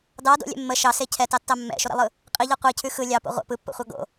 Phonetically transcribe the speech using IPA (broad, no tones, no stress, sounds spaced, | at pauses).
d ɑ d o̰ lʲ ɛ̰ mː ə ʃ ɑ s e cʰ ɛ t ɑ tː ɑ mː ɛ̰ ʃ o ɾ ɛ̰ lˠ ɯ | qʼ i ʎ ɛ qʷ i cʰ ʉ x ɯ lʲ ɑ p o̰ ʁʷ ɛ̰ p ɯ pː o̰ χʷ ɑ ɡ o̰